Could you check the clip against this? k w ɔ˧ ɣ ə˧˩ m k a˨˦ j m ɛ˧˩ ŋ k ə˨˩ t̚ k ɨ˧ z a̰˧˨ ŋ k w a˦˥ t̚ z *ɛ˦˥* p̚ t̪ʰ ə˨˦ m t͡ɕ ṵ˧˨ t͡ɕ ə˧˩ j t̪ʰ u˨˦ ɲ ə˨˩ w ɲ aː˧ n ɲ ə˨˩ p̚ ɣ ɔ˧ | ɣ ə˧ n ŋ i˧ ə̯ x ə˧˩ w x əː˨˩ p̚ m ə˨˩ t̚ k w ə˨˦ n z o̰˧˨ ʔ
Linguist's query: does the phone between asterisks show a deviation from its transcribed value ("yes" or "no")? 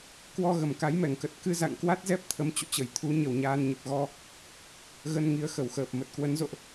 no